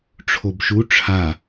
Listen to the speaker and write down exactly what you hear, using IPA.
ʈ͡ʂʰobʃu ʈ͡ʂʰa

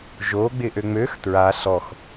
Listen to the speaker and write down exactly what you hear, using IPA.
ʒoɡ͡bɪ ʔøŋ͡møx tɹa ɬɔx

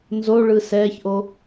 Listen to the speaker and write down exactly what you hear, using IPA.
nzoɭɯ sɛçʔo

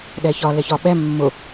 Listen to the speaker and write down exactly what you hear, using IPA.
ɗɛçɒ lɛçɒ ɓɛ mːʊ

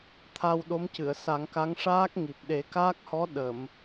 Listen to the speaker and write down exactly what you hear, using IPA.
t̪ʰa˧wɗo˧˥mcɨ˨˩˨ə̯ sa˨˩˦ŋka˧˥ŋ ʂaː˦˥k̚ŋi˨˩p̚ ɗe˨˩˦kaː˦˥k̚hɔ˧˥ ɗə˨˩˨m

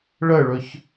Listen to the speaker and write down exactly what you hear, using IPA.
ɭəɭɵç

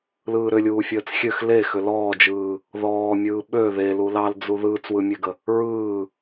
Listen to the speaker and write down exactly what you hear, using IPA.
lɯːɾʏlʲuː fʲəːt͡sxʲøx le xʏlɔːd͡ʒɯː | ðɔːmʲɯː ɓø ðelu lɑld͡zu ðɯːt͡swɯmʲøɡə | ɹɯː

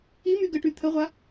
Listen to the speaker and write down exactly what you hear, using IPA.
i myɡəʈy t̪ʰəʁʷa

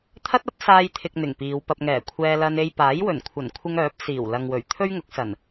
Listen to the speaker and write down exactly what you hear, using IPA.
t̪ʰɐ˥t̚ɐ˥p̚saː˧jt̪ʰɪ˨k̚ n̪ɪ˨˩ŋpiː˨˧wpɐ˧p̚ ŋɛː˨˩kʷʰɛː˧lɐ˧n e˧j paː˨˥j wɵ˨˩nkʷʰɐ˨˩n kʷʰɪ˧ŋ œː˨˥p̚siː˨˩wlɐ˨ŋwɵ˨˩ɥ t̪ʰɵ˥ɥŋʊ˨˥k̚sɐ˨˩n

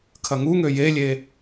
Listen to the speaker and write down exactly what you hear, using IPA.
kʰɐŋuŋø jelʲe

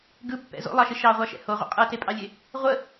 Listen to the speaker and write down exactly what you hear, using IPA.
ɡɯpːɛ̰ zo̰lˠɑʃɪ ʃɑʁʷɑʃɛ̰ hoʁʷɛ̰ qʼɯtepʼɑlʲe | ʁʷə

